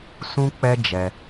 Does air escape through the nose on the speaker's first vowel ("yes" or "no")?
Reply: yes